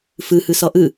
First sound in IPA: f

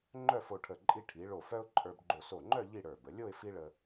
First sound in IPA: ŋ͡ǃ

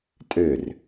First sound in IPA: tʼ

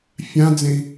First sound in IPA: fʲ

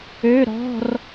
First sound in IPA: ø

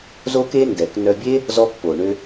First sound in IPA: z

